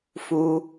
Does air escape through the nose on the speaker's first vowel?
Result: no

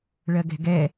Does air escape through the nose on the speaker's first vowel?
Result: no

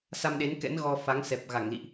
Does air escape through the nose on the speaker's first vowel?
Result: no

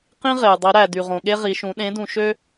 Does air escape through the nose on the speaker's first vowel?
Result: yes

